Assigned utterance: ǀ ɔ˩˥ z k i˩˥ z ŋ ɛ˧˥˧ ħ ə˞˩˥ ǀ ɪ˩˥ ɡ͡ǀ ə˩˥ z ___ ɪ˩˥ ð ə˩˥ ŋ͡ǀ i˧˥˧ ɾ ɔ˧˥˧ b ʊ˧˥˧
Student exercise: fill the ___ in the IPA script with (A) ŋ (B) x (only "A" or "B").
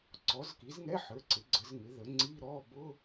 A